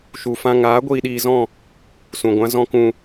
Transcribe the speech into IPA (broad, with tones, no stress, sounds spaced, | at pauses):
ʃ u˨ f ã˧ ŋ aː˨˦ ɡʷ iː˧ ɗ iː˧ z ɔ̃˦˨ | s ũ˨ ɡʷ ã˦ z ɔ̃˦ k ũ˧